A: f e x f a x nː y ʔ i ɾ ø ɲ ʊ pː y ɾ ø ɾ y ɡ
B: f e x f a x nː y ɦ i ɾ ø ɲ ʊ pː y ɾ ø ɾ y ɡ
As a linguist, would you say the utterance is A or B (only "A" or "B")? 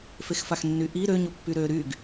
A